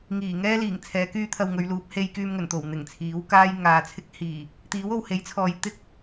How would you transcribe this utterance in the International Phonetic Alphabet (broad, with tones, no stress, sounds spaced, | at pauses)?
ŋ iː˨˩ ŋ ɛː˥ l iː˨˩ ŋ t͡sʰ ɛː˨˧ k yː˥ t̪ʰ ɐ˧ w ŋ ɵ˨˧ ɥ l uː˨˥ p̚ h e˧ j k yː˧ m ŋ ɵ˨˩ n t̪ o˨˩ w n̪ ɪ˨˩ ŋ t͡sʰ iː˨˥ w k aː˥ j ŋ aː˨˧ t͡sʰ ɪ˥ k̚ h iː˨˩ | t̪ iː˨˥ w o˨ w h e˨˥ j t͡sʰ ɔː˨ j t̪ ɪ˥ k̚